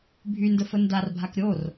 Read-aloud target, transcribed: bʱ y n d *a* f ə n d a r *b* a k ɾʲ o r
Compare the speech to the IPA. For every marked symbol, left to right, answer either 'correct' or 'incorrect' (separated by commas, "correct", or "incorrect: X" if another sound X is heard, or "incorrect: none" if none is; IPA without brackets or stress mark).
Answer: incorrect: ə, incorrect: bʱ